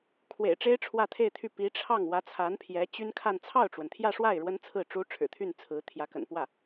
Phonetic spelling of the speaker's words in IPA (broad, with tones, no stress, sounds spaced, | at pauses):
kʰ w ḛ˨˩ ɪ̯ ʈ͡ʂ e˥ ɪ̯ ʈ͡ʂʰ w ä˥˧ t̪ʰ e˥˧ ɪ̯ t̪ʰ y˥˩ p i˧˥ ʈ͡ʂʰ ɑ˥˩ ŋ w ä˧˥ t͡sʰ a˧˥ n pʰ j ɛ˧˥ t͡ɕ y˥ n kʰ a˥˧ n t͡sʰ ɑ˥˩ ʊ̯ ʈ͡ʂ w ə˩ n t̪ʰ j ä˥˧ ʂ w a˥˩ ɪ̯ ɻ w ə˥ n t͡sʰ ɹ̩˥˩ ʈ͡ʂ u˥ ʈ͡ʂʰ ɻ̩˨˩ t̪ʰ y˥˩ n t͡sʰ ɹ̩˧˥ t̪ʰ j ä˧˥ k ə̰˨˩ n p w ä˥˩